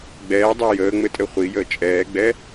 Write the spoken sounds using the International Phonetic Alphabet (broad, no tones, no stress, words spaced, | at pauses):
ɡ͡bɛːdˤe jəːŋ͡mɘtʼɘ χʷijəː t͡ʃʼɛːɡ͡bɛ